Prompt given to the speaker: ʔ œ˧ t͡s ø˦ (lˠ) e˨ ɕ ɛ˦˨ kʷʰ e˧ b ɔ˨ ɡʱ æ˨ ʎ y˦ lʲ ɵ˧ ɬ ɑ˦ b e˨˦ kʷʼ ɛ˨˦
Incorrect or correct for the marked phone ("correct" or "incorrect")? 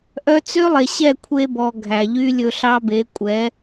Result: correct